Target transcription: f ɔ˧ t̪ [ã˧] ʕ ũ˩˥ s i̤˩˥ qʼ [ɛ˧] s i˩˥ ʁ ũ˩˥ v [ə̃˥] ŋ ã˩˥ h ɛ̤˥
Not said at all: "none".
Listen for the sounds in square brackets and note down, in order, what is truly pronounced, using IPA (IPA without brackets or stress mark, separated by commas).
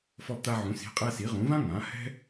a˧, ɛ˧, ã˥